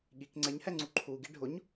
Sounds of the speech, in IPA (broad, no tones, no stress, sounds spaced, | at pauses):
ɠ i k ŋ͡ǀ ɛ ɲ h ɛ ŋ͡ǀ u ǃʰ u ɡ i ɖʱ ʊ ɲ